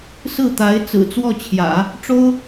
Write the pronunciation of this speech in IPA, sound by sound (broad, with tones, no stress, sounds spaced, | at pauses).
s ɹ̩˥˩ t̪ a˧˥ ɪ̯ t͡s ɹ̩˨˩ t͡s w ɔ˥˩ t͡ɕʰ j ä̰˨˩˦ | ʈ͡ʂ o˥ ʊ̯